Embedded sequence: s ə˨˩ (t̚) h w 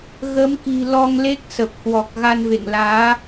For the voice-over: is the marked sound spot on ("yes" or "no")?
no